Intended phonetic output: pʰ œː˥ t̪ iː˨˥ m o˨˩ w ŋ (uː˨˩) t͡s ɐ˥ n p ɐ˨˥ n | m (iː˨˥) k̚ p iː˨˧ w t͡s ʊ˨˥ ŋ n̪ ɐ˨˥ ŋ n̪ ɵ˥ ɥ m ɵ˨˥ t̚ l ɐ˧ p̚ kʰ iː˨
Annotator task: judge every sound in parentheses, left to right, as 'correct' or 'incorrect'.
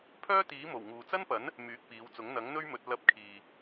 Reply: incorrect, incorrect

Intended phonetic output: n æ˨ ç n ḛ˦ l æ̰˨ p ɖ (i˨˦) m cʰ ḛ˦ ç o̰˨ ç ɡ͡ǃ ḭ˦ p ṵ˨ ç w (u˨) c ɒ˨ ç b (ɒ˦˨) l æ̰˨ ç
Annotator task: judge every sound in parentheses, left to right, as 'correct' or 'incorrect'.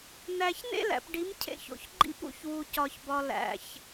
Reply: correct, correct, incorrect

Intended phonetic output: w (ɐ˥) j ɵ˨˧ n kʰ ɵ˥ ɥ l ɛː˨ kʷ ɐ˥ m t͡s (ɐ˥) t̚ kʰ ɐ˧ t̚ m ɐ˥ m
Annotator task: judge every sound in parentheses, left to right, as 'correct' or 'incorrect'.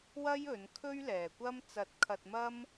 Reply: correct, correct

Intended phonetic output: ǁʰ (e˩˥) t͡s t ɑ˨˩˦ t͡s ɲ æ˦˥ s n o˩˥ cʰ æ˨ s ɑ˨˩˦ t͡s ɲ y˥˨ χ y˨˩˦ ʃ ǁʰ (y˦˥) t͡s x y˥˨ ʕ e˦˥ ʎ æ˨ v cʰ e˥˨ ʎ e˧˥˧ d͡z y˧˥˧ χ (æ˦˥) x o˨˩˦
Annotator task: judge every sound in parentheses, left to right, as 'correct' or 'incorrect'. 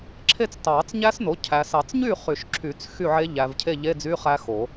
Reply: incorrect, incorrect, correct

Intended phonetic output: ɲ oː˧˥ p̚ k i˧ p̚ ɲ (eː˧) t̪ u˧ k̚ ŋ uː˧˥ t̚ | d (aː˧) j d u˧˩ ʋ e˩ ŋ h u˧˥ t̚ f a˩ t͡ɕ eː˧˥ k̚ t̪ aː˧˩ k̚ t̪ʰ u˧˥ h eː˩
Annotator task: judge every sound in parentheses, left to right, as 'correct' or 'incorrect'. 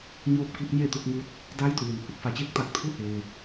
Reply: incorrect, incorrect

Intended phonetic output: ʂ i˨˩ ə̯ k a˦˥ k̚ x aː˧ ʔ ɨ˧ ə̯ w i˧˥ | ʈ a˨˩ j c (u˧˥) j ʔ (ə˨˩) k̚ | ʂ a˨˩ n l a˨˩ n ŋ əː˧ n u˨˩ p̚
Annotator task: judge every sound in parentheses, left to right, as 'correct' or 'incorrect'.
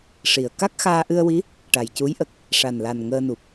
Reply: correct, correct

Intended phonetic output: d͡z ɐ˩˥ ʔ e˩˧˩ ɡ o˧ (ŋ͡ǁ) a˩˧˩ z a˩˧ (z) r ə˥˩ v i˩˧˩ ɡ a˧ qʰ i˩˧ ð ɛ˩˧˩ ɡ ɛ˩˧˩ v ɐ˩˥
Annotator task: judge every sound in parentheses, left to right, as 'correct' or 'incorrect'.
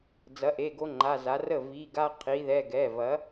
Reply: incorrect, incorrect

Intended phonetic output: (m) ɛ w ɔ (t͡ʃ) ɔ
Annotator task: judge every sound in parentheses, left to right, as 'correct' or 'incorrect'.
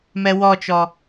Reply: correct, correct

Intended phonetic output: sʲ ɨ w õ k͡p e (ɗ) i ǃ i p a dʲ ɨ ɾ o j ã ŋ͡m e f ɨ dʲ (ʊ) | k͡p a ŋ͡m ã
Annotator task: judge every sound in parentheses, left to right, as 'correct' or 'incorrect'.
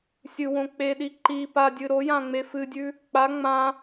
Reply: correct, incorrect

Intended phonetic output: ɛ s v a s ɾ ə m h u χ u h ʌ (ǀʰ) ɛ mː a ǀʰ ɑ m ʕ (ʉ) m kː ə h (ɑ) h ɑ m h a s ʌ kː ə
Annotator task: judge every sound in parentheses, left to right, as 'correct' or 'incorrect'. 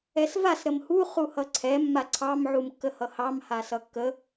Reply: correct, incorrect, incorrect

